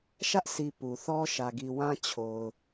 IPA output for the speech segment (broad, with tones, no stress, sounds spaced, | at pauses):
ʃ ä˦ ʔ sʰ i˨ p u˨ θ ɔ˦ ʃ ä˨ ɡ i˨ w ã˦ t͡ɕʰ o˨ ʊ̯